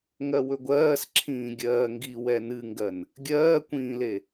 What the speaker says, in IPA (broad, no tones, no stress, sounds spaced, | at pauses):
ŋ ɜ w ɵ ɡʷ ɜː s ǁʰ ĩː ɡʲ ɜː ŋ ɡ i w ɛ n ɨ ŋ ɡ ɜ n | ɡʲ ɜː kʷ ĩː l e